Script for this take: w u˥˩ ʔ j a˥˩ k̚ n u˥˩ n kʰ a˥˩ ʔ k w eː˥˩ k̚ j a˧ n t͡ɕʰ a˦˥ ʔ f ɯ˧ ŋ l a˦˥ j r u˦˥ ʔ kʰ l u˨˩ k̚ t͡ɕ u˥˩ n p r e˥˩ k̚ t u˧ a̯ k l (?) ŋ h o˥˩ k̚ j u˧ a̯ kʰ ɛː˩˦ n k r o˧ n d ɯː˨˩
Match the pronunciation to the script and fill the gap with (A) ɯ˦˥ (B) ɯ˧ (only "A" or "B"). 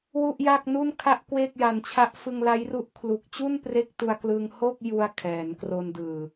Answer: B